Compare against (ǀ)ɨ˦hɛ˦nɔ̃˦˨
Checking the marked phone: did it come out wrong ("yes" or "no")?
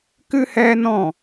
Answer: yes